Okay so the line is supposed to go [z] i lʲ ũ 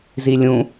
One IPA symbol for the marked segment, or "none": z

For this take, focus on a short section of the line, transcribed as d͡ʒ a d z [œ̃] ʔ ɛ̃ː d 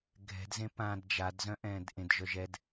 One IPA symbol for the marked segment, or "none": œ̃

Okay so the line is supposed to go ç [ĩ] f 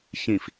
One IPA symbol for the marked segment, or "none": ĩ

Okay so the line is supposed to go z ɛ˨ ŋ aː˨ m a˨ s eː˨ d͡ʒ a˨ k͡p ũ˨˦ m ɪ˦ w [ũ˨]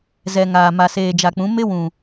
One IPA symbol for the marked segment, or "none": ũ˨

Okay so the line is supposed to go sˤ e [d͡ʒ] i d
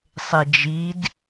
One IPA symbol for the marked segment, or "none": d͡ʒ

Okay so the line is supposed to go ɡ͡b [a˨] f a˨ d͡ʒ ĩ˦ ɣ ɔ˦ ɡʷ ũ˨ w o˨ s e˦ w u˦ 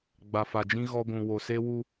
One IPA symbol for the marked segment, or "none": a˨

